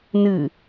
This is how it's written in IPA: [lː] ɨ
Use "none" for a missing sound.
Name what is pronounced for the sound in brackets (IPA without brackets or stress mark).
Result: n